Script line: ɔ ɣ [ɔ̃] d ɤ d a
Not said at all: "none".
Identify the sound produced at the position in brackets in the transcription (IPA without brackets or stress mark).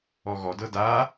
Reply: ɔ